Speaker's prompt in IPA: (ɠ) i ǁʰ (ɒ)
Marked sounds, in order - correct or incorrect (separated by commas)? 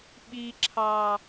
incorrect, incorrect